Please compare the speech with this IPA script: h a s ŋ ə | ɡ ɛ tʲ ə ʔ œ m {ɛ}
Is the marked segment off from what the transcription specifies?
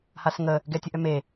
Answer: yes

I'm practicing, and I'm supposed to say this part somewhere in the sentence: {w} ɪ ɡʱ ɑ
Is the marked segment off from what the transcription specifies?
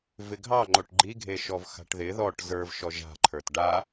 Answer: yes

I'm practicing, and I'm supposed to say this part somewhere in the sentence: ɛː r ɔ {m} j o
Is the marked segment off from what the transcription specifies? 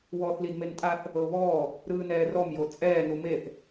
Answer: no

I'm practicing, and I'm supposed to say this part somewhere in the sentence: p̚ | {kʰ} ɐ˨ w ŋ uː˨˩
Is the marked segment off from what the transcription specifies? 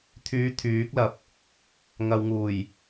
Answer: yes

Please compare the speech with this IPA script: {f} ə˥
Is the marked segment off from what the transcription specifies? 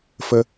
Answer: no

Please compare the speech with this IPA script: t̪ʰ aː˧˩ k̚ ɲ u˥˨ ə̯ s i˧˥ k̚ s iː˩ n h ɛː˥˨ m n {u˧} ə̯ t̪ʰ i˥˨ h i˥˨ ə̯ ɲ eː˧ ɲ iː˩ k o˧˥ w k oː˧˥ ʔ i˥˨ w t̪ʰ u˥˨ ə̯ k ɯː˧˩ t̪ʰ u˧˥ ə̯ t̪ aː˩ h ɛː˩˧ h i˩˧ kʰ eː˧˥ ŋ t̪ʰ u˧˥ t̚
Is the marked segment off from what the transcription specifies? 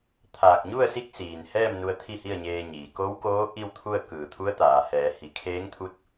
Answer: no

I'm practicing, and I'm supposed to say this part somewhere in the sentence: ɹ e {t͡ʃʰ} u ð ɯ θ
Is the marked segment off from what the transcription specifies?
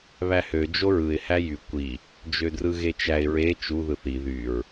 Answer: yes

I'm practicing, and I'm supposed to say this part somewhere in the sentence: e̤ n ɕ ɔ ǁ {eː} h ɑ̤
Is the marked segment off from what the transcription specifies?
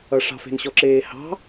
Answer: no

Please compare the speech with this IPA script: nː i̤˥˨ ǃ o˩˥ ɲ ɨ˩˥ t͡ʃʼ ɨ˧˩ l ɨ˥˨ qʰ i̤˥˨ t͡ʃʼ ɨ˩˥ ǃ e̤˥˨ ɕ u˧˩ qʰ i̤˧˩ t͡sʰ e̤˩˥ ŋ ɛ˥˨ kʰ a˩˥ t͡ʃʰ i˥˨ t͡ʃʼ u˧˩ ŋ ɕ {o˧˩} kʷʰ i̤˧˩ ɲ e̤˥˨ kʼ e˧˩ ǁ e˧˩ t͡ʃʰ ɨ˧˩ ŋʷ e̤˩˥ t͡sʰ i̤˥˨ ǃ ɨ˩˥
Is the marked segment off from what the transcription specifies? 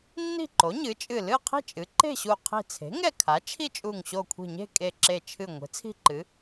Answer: no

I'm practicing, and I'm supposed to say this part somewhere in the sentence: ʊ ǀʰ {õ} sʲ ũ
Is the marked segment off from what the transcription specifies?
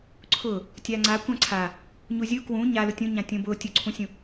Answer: yes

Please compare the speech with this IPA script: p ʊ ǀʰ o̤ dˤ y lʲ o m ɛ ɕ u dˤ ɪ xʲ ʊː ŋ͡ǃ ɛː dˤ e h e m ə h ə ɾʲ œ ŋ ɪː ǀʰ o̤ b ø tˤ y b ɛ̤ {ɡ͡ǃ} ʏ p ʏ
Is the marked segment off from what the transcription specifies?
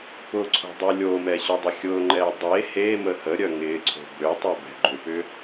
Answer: no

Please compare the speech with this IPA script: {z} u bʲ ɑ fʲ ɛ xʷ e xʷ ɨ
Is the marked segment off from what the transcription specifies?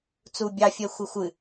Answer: yes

